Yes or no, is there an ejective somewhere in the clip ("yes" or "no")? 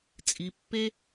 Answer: yes